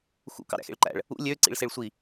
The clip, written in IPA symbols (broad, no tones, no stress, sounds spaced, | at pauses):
x ṵ k ɑ̰ ɾ æ̰ x ḛ ɭ ǃ æ̰ ɭ | ṵ lʲ ø ǀ ḭ ɭ s e ɭ sʷ i